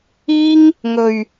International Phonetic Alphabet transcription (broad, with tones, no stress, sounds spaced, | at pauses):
iː˥ ŋ | ŋ ɵ˨ ɥ